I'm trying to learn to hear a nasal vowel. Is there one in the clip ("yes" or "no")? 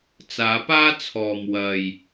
no